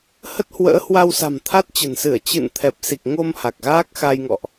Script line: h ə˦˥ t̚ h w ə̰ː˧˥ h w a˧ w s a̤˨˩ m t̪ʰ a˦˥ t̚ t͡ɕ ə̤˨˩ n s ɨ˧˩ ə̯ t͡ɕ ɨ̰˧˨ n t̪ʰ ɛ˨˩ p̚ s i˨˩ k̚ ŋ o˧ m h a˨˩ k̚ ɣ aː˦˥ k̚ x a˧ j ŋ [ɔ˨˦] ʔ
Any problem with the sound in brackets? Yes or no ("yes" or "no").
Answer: yes